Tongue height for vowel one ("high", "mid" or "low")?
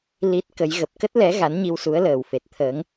high